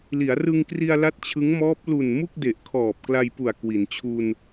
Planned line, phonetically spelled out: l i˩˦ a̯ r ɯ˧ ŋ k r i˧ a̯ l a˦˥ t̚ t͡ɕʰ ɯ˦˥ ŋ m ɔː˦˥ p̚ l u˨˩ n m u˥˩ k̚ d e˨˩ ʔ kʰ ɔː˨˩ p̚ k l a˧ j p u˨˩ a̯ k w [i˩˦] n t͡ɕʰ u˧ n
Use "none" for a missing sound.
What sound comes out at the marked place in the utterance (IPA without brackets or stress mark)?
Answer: i˩˦